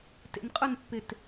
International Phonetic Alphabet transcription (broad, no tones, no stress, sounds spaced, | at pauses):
t ḛ n qʼ ʊ n pː ɪ t